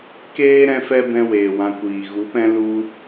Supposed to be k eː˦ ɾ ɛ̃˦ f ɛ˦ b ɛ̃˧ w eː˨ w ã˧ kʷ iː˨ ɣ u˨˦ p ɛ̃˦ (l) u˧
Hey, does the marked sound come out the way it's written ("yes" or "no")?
yes